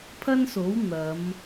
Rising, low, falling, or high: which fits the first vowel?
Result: high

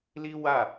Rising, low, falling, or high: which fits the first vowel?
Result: high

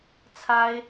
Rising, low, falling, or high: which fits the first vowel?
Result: high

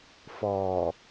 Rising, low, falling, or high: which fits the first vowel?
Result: low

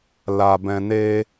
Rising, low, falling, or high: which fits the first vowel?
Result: low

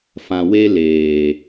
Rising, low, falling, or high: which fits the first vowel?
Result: low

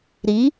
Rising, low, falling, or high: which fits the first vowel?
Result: rising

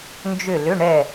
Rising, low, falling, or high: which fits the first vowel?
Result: falling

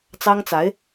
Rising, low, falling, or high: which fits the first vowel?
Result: high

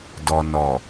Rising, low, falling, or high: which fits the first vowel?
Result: low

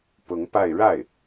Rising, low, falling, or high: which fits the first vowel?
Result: rising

